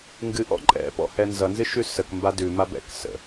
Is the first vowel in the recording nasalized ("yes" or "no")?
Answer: no